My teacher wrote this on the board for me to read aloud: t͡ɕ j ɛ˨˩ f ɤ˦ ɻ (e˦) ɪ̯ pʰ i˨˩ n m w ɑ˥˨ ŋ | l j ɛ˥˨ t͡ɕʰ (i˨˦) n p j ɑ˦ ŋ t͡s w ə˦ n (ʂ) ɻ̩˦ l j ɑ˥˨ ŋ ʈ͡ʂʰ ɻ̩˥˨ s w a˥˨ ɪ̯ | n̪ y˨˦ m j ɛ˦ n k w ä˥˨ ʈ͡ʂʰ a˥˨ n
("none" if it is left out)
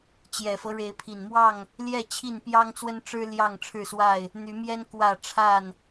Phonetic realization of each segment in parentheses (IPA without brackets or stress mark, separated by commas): e˨˦, i˥˨, ʈ͡ʂ